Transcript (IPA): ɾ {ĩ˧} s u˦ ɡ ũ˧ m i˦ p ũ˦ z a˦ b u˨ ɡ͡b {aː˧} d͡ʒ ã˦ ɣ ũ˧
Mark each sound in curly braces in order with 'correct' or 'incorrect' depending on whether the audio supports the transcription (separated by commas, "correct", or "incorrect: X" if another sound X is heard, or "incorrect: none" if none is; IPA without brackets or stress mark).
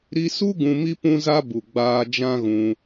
incorrect: i˧, correct